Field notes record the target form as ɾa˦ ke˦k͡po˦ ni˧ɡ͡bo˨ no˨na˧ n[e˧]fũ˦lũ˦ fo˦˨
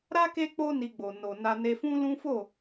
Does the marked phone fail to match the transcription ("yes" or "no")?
no